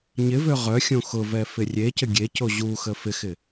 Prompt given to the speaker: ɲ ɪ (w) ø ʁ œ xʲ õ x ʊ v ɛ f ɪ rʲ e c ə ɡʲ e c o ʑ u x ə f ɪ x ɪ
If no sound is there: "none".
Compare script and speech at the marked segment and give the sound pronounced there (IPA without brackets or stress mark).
v